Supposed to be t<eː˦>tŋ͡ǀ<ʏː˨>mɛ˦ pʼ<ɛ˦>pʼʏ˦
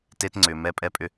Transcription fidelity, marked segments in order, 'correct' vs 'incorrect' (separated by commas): incorrect, correct, correct